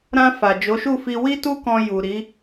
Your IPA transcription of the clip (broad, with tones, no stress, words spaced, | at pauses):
ɾã˧fa˨ d͡ʒo˨˦ʃu˦˨ fi˧ wi˦tu˦kɔ̃˧ ju˨ ɾi˨˦